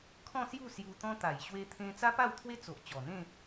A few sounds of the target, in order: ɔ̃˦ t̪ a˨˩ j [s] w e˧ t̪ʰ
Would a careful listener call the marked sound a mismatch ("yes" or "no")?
yes